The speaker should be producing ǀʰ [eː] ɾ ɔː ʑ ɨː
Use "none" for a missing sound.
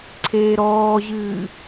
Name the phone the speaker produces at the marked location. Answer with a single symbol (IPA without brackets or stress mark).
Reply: eː